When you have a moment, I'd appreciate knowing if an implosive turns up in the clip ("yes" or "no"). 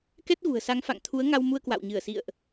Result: no